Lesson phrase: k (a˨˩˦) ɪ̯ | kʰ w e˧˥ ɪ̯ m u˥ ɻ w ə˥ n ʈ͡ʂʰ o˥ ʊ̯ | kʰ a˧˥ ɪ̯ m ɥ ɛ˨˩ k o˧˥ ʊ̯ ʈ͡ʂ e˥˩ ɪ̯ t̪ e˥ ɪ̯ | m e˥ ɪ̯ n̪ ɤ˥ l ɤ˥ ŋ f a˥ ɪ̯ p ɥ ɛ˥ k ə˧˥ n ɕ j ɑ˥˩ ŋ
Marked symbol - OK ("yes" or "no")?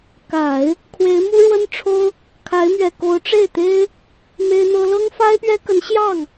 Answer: yes